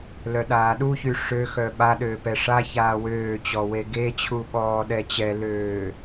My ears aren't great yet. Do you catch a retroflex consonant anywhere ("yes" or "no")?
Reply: yes